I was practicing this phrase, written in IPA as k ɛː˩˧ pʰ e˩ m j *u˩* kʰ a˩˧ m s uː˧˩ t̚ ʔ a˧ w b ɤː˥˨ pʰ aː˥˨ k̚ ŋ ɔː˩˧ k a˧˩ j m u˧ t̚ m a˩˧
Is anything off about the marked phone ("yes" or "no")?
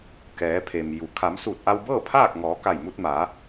yes